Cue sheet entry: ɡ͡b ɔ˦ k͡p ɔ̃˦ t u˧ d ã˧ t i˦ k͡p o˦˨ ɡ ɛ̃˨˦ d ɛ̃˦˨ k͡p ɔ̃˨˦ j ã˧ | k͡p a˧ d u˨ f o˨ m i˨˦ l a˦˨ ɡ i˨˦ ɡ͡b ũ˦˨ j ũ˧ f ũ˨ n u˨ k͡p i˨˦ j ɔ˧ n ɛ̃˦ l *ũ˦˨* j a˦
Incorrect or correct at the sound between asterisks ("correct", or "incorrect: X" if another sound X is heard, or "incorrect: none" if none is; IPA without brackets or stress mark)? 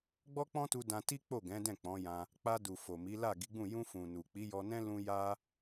incorrect: ũ˦